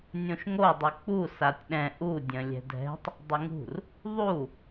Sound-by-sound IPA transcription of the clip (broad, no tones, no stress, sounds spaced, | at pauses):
nʲ õ ʃ ŋ o dˤ u k͡p u s a tʲ ɗ ɛ̃ ʔ u dʲ ə̃ lʲ ɛ̤ dʱ ɛ̤ tˤ | dˤ ɪ ŋ ṳ r | ðˤ u